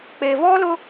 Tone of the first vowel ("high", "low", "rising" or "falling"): low